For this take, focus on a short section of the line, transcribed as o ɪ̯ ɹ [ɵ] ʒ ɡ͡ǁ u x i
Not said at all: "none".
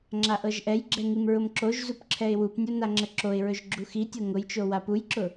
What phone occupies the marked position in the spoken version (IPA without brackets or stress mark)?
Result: ɵ